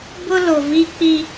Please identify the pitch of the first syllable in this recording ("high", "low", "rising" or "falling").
high